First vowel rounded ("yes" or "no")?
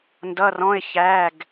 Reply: no